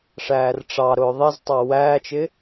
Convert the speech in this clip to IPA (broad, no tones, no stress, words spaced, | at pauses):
ʂæːrʈ͡ʂɑɾʊː ðˤɪztˤɑ wæːt͡ʃɪ